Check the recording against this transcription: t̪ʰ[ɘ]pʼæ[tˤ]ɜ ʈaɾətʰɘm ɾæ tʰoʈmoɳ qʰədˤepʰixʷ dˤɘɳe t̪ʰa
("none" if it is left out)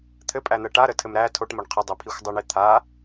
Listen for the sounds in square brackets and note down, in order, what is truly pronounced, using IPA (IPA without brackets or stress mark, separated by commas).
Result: ɘ, n̪